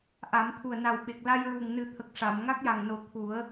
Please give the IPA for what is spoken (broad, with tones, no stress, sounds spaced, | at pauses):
ʔ a˨˩˦ m t̪ʰ u˨˩ ə̯ n a˨˩ w ɓ e˨˩ k̚ l a˧ j ɹ u˨˩ ŋ n ɨ˨˩˦ t̪ʰ ə˨˩ k̚ ʂ a˨˩˨ m ŋ a˦˥ k̚ j a˨˩ ŋ n o˨˩ t̪ʰ u˨˩˦ ə̯